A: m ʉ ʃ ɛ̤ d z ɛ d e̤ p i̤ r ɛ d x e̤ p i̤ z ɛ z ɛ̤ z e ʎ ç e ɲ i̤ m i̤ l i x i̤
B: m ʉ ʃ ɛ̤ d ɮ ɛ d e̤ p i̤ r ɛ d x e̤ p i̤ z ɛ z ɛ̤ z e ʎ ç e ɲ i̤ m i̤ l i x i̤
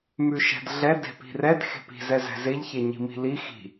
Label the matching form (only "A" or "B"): B